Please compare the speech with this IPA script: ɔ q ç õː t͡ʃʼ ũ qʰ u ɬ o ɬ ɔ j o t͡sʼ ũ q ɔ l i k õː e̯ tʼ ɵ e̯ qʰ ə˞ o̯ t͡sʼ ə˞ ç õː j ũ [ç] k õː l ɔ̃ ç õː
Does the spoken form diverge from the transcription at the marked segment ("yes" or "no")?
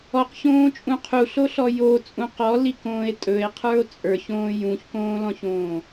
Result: no